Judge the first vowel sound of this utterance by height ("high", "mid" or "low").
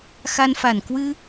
low